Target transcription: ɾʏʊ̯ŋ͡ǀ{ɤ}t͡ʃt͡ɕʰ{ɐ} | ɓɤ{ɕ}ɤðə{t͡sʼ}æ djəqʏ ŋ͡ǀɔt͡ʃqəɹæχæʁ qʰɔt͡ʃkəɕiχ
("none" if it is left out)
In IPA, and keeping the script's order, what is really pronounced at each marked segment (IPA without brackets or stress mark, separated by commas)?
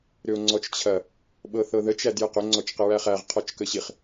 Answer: ɔ, ɐ, θ, t͡ʃ